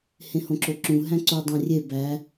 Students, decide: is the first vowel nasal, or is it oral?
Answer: nasal